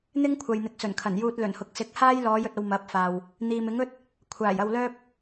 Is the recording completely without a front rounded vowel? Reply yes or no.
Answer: no